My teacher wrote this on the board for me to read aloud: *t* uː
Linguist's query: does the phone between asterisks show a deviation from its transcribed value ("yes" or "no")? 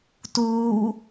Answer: no